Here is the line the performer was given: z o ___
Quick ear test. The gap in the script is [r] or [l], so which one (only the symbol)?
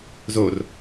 r